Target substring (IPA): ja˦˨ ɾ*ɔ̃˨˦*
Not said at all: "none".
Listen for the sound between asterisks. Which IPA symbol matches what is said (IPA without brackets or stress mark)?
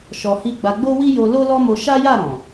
ɔ̃˨